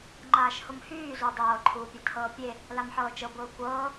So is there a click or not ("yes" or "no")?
yes